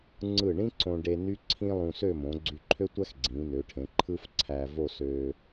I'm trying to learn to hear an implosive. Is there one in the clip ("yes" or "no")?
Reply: no